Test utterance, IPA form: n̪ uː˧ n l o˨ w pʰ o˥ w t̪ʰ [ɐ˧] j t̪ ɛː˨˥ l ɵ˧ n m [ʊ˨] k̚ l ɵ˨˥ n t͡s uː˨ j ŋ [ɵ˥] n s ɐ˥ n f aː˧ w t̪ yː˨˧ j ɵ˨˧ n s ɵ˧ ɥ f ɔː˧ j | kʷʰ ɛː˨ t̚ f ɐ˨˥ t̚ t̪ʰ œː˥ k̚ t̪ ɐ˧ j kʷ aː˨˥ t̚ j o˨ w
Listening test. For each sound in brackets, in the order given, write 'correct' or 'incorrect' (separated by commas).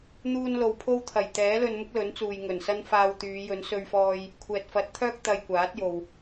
incorrect, incorrect, incorrect